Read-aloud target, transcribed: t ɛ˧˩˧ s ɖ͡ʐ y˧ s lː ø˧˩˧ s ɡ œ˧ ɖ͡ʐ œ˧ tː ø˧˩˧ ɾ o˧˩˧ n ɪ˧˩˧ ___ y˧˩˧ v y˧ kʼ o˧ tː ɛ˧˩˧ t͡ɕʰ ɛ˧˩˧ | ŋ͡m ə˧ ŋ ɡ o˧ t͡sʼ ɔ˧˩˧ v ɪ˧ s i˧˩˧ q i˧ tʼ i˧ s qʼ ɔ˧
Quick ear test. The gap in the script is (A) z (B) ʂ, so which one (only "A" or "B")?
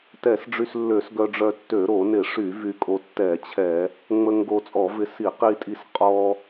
B